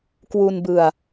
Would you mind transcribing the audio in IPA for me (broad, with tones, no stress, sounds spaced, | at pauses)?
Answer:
k w u˧ n b ɯ˧ a̯